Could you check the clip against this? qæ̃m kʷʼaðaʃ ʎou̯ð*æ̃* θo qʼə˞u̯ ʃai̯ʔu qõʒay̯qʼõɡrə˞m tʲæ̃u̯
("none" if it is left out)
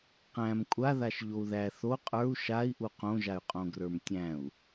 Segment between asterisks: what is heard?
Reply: æ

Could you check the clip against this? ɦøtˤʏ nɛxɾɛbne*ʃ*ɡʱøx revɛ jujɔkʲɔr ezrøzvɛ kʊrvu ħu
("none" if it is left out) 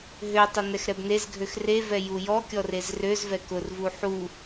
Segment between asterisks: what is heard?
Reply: z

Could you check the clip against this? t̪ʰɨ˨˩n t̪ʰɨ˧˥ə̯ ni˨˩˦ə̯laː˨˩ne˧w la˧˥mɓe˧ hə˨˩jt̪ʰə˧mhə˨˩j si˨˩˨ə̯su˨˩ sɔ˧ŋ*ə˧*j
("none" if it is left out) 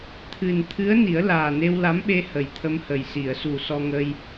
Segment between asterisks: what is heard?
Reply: ə˧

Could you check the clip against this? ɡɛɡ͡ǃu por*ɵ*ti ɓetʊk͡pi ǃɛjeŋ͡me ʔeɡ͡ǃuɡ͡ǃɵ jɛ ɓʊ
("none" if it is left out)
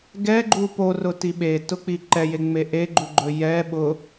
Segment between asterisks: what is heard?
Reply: ʊ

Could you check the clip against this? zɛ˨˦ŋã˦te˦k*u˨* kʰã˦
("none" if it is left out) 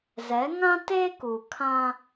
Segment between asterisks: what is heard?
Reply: u˨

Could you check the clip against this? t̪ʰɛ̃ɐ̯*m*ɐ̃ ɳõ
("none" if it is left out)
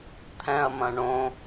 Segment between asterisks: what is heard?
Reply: m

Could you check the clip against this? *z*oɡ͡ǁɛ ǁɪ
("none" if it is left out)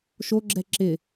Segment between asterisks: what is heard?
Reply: ʃ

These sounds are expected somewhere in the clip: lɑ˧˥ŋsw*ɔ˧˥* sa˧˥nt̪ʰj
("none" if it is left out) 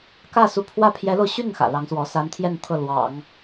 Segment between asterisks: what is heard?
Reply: ɔ˧˥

